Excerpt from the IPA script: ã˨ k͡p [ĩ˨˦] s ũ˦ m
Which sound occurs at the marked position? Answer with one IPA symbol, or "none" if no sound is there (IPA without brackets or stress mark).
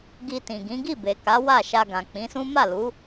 ĩ˨˦